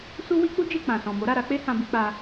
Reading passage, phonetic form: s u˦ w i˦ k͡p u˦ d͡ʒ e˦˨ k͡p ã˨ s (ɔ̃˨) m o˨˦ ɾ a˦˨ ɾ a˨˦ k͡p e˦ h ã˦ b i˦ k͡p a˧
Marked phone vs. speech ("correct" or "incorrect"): correct